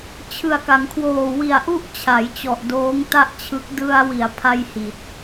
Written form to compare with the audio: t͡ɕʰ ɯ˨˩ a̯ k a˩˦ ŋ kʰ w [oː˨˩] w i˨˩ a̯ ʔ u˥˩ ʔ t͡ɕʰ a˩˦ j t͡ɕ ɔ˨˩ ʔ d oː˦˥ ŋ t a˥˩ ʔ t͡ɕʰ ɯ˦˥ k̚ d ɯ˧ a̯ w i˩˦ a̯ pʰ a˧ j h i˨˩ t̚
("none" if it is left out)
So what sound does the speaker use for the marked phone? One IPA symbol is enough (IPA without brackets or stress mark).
oː˨˩